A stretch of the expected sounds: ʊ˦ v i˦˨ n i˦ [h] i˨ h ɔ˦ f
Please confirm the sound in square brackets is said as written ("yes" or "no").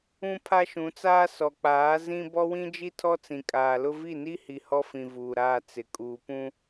yes